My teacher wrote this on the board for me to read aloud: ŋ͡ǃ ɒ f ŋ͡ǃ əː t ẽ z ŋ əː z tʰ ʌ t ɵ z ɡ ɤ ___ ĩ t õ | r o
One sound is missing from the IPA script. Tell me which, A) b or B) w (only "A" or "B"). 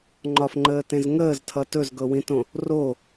B